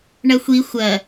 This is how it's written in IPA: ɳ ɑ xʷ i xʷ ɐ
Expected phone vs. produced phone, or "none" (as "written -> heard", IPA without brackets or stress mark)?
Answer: ɑ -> ɐ